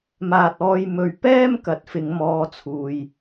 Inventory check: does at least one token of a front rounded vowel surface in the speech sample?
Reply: no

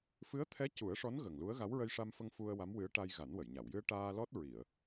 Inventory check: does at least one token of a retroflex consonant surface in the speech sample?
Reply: yes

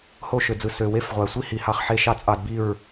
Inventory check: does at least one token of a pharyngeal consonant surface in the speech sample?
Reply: yes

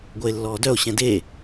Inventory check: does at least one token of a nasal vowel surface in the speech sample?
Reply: yes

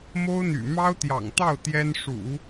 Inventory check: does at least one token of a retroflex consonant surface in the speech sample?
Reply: yes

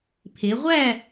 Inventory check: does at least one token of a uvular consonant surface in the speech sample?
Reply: yes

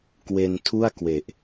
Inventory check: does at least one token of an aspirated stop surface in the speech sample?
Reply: yes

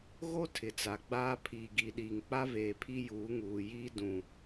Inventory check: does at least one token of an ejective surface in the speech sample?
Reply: no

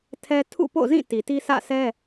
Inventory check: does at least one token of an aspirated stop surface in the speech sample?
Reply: yes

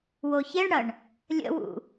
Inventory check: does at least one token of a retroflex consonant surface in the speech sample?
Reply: yes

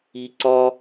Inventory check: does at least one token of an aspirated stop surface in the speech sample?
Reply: no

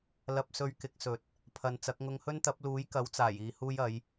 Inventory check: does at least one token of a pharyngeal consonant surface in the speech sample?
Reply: no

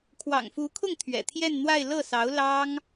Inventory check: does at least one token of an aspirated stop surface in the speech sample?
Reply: yes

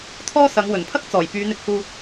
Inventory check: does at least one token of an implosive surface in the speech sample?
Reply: no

